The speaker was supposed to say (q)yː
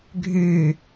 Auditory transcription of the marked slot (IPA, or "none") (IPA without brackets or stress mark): ɡʱ